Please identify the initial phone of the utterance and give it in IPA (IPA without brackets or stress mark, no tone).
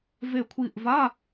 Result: v